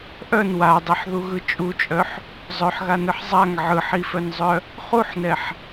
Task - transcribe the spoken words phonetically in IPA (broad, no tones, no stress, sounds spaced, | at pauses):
ʔ œ n w a dˤ i ħ ð u ɣ ɯ t͡ʃʼ u t͡ʃʼ œ ħ | zˤ œ ħ ɣ a n ɯ ħ zˤ a ŋ ʕ ɯ ħ i f œ n zˤ œ | χ u ħ n ɛ ħ